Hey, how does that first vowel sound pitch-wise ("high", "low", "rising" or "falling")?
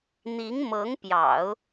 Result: rising